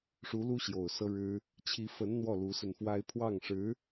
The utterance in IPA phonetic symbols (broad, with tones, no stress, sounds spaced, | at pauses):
ʂ u˧˥ l u˥ ɕ j o˨˩ ʊ̯ s ɤ˥ ɻ ɻ̩˥ | t͡ɕʰ i˧˥ f ə˧˥ n n̪ w ɔ˥˩ l u˧˥ s ə˧ n f w a˥ ɪ̯ pʰ w ɑ˥˩ ŋ ʂ ɻ̩˧˥